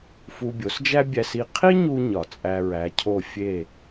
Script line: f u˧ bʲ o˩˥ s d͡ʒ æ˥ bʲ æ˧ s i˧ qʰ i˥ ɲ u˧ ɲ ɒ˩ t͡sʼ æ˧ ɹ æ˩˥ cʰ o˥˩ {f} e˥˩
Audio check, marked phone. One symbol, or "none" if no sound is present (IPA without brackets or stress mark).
fʲ